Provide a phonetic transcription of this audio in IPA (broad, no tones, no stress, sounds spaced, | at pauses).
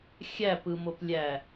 xʲ æ p ɯ m o p lʲ æ